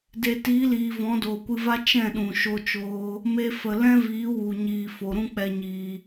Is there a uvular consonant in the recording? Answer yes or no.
no